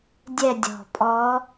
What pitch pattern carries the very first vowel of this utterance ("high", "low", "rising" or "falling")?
falling